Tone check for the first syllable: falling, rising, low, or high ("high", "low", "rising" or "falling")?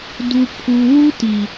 low